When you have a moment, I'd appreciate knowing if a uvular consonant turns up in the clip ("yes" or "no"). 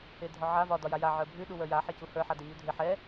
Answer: no